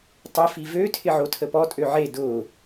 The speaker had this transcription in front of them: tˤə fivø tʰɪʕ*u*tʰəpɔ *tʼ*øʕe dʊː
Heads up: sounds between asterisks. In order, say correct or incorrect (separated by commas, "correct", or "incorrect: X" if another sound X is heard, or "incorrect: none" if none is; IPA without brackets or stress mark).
incorrect: o, correct